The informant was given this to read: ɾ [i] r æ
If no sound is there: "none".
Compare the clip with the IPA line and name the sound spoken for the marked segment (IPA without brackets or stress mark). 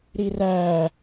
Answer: i